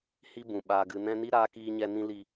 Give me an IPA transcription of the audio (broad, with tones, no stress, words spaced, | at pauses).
hi˦bũ˨ ɓaː˨ɡɨ˨nɛ̃˧ ni˦ ɾaː˧kiː˧ɲɛ˧ nĩ˦ li˧